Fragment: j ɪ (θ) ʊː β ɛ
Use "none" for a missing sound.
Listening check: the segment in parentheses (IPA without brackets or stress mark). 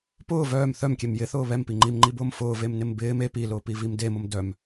θ